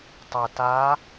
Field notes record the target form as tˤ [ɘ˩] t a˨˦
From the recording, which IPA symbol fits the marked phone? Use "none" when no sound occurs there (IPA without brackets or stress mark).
ɛ˩